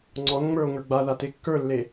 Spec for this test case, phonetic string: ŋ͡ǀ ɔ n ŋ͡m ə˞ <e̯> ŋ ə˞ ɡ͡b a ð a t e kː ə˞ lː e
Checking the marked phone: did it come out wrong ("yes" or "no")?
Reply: yes